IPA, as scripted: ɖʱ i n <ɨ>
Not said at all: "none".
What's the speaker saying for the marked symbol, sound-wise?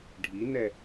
ɛ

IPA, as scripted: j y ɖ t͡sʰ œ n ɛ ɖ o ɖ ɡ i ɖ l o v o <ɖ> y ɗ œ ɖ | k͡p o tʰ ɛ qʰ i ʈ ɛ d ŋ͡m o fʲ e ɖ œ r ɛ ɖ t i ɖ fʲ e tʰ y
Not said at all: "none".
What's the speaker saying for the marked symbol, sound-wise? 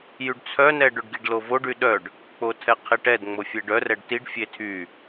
ɖ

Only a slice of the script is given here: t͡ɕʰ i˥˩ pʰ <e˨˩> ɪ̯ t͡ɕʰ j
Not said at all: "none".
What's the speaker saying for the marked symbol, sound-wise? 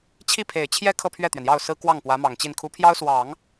e˨˩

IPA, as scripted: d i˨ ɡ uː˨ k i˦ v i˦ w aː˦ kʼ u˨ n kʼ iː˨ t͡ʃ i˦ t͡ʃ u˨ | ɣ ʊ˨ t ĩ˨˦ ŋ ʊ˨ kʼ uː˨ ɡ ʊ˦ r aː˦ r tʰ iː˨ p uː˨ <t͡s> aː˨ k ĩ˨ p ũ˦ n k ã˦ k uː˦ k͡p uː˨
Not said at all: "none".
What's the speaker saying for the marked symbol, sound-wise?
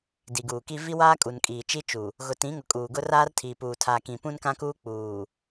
tʰ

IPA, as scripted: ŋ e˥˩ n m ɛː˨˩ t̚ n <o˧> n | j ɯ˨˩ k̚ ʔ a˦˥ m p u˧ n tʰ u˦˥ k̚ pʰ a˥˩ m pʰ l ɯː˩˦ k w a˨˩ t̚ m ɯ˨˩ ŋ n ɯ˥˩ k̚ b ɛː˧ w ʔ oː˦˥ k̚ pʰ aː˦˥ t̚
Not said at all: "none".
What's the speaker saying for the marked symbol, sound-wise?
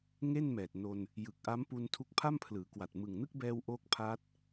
o˧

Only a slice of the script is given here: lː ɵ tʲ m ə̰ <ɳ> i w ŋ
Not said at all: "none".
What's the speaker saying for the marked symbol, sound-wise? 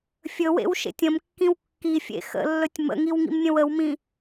ŋ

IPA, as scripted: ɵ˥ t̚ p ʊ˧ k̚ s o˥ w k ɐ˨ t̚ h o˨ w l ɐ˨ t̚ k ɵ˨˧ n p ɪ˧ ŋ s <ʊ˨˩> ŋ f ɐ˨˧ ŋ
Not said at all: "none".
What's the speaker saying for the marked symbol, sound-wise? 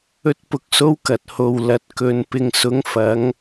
ʊ˨˧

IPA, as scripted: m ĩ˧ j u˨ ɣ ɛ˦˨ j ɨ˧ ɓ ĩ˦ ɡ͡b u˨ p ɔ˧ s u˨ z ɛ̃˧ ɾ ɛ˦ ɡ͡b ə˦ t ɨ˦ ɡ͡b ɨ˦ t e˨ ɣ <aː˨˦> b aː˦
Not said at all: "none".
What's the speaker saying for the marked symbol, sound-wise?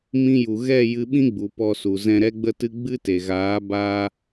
aː˨˦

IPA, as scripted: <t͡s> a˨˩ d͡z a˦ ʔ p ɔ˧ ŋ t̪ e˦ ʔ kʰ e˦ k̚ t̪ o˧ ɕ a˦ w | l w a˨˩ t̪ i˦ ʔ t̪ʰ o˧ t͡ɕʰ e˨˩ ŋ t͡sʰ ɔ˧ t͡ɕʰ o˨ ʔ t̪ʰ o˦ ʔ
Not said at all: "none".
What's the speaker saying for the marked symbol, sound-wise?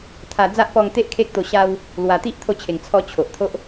t̪ʰ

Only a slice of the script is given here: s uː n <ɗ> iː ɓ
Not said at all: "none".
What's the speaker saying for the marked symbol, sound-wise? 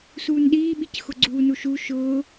ɗ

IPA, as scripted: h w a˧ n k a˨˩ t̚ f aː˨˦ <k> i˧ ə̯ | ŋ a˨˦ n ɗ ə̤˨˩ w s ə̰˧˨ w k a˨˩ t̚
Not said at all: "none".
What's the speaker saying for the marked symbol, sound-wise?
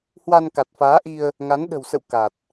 ʔ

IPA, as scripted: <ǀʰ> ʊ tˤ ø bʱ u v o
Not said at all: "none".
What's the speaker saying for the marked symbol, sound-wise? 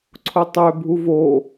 ǀʰ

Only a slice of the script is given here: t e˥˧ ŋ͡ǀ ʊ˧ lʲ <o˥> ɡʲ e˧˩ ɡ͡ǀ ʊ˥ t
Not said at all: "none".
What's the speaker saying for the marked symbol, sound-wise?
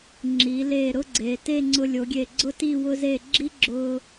o˩˧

